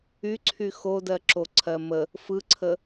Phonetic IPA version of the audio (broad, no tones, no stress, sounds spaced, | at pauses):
y ǀʰ y x o d ɜ ǁ o ǀʰ ɜ m ə | f ɯ ǀʰ ə